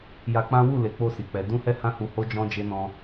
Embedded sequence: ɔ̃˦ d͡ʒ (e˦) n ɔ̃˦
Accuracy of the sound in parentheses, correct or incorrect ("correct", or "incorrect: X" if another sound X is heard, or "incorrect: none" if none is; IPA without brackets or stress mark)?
correct